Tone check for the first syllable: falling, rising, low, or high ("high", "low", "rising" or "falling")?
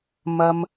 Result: high